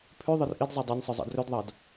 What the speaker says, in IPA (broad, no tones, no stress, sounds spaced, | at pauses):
pʰ ʉ ðˤ œ r ʔ i d zˤ e dˤ ɑ nʲ sˤ œ zˤ ɑ̰ d r ø d ðˤ ɑ d